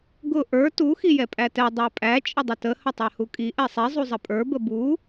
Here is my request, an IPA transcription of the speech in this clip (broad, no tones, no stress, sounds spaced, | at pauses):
ɡ ʊ ʔ ə˞ t u x i j ɛ pʼ æ t ɛ dˤ æ pʼ æ t͡ʃʼ ə dˤ ʊ t ə h ə tˤ ɛ h u kʼ i ʔ ɛ sˤ i zˤ u zˤ ə pʼ ə˞ b ə b u